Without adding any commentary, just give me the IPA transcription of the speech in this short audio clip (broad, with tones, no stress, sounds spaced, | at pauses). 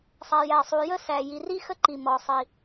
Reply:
sˤ æ˩ j æ˩ sˤ u˩ j ə˥ s æ˩ j i˩ r i˥ x ə˥ ǃ i˩ m ɔ˩ sˤ i˩